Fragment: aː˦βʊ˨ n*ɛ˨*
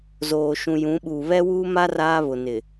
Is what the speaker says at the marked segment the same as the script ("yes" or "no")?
no